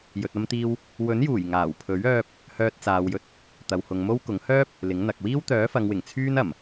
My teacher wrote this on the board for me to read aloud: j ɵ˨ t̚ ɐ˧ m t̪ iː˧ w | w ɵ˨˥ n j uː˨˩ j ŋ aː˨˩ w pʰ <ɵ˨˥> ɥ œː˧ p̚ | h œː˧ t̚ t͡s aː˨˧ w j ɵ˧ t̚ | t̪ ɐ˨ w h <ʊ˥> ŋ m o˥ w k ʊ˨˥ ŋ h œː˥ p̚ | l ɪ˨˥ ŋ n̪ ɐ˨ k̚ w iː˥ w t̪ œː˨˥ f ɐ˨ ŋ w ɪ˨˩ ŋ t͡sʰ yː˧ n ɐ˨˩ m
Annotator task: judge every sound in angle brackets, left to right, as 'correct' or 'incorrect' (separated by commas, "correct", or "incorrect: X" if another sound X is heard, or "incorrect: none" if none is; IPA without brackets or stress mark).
correct, incorrect: ʊ˨